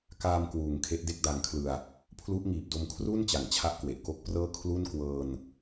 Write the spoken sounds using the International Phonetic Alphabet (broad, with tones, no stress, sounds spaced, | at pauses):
k aː˧ m k w uː˨˩ ŋ kʰ e˦˥ ʔ d e˥˩ k̚ d a˧ ŋ kʰ l ɯ˧ a̯ | pʰ l u˦˥ ʔ ŋ iː˨˩ p̚ d o˧ m kʰ r u˥˩ n t͡ɕ a˩˦ ŋ t͡ɕʰ a˦˥ ʔ k w e˨˩ ʔ k o˦˥ k̚ p r ɤː˥˩ kʰ l u˥˩ n k w ɤː˧ n